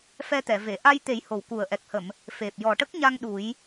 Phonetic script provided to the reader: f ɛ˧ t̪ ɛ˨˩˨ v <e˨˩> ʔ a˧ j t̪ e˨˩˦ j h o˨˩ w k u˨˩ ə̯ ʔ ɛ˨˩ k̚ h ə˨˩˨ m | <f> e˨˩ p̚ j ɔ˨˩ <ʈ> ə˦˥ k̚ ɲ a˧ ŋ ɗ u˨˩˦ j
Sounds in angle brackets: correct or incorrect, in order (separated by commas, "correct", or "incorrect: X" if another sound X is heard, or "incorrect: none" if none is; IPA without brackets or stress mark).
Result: incorrect: e˨˩˨, correct, correct